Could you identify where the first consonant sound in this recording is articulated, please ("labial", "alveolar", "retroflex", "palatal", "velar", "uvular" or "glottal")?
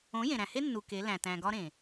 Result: palatal